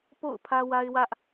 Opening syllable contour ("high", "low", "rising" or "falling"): falling